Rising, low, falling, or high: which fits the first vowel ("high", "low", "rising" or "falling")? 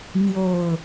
low